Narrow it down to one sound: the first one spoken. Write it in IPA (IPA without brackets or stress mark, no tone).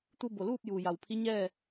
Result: t̪